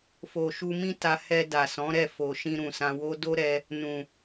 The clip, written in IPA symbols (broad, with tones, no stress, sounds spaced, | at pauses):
f o˨ ʃ u˧ m ĩ˦ t a˧ h ɛ˧ d a˨ s ɔ̃˨˦ ɾ ɛ˦˨ f o˨ ʃ ĩ˧ ɾ ũ˨ s ã˧ w o˦ d o˦ ɾ ɛ˧ | n ũ˨